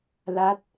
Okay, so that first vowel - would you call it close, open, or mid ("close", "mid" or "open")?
open